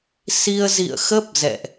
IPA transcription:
s i˧ ə̯ z ḭ˧˨ ə̯ x ə˦˥ p̚ z ɛ̰˧˨ ʔ

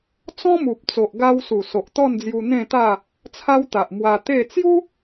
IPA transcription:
t͡s ɔ̃˦ m u˨ p̚ t͡s o˨ ʔ ɡ a˧ w s u˨˩ s o˨ ʔ t̪ ɔ˥˧ n d͡z j u˧ n̪ ẽ˥˧ t̪ a˥˧ | t͡sʰ a˦ w t̪ a˨ ʔ m w a˧ t̪ e˥˧ t͡s j u˦

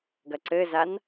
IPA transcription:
ɡ ɐ ǀ ɘ z a n

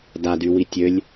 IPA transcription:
d a d y w i tʲ ø lʲ

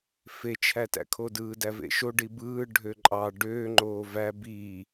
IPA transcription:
f e t͡ʃʰ æ t æ̰ kʰ o d ɯː d æ v ḛ ʃ o ɖ i b ɯː ɖʱ ø ǃʼ ɑ ɖ øː ŋ͡ǃ oː v æ b iː

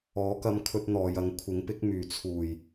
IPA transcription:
ɔː˨˥ k ɐ˧ m kʰ ɵ˧ t̚ n̪ ɔː˨˧ j ɐ˨˥ ŋ kʷʰ ɪ˨˥ ŋ p ɪ˨˥ k̚ m yː˨˩ t͡sʰ uː˨˩ j

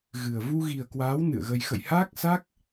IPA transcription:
ɣ ɨ˨˩ ə̯ v u˧ ɣ i˨˩ ə̯ k w aː˨˦ w n ɨ̰˧˨ ə̯ ɣ ə˧ j x ə̰˧˨ j h aː˦˥ k̚ s a˦˥ k̚

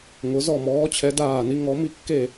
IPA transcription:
ŋ ʊ˧˥ z ɔ˥˧ m ɔː˧˥ t͡ɕʰ ɛ˧˥ d aː˥˧ n i˧˥ ŋ ɔ˧˥ m i˥˧ kː e˥˧

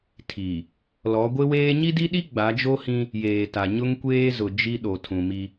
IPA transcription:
tʰ i˨ | l ɔ˨˦ ɡʷ ɪ˦ w eː˦ ɲ i˦ d i˦ ɗ i˦ ɡ͡b a˨˦ d͡ʒ o˦ h ĩ˦ | j eː˨ t a˨ ɲ ʊ˦ ŋ kʷ eː˦ z ʊ˨ d͡ʒ i˦ ɗ o˨ tʰ ũ˨ m i˦

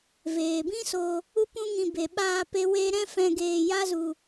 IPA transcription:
v eː˨ b ĩ˦ s o˧ | u˦ p ũ˦ ŋ ĩ˧ b e˨ ɓ aː˧ p e˦ w eː˦ ɾ ɛ̃˦ f ɛ̃˧ ɡ eː˧ j a˦ z u˧

